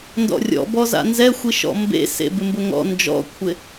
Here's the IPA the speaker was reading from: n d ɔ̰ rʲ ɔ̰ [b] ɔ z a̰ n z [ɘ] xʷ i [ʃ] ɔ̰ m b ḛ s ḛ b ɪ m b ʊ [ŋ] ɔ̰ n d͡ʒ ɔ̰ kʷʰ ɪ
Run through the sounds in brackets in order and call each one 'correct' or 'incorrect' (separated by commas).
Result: correct, incorrect, correct, correct